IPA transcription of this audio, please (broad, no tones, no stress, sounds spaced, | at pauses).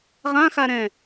ʁ ã x a ɾ ɛ̃